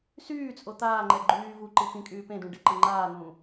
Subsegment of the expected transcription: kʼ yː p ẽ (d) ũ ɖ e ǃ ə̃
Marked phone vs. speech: correct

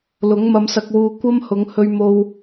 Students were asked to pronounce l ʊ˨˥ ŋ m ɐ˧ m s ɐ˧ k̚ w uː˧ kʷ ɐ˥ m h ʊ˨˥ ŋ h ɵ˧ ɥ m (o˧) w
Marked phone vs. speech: correct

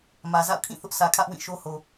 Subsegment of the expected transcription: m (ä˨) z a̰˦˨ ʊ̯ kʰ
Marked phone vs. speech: correct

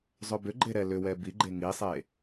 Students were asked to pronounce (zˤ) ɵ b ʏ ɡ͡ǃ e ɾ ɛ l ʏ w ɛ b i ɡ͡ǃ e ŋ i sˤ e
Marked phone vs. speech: correct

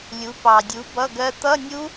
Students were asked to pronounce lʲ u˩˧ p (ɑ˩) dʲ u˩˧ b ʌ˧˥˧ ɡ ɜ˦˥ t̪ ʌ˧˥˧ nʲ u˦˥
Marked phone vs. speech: correct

